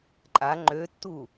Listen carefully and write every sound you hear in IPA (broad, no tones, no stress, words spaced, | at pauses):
ǃʼa ŋ͡ǃøtːu